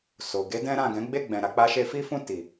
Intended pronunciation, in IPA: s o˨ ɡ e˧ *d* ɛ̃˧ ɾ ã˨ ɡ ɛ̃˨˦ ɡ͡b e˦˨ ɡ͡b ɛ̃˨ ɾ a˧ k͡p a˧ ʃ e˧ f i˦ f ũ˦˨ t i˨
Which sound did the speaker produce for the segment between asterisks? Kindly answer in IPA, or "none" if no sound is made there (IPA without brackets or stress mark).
d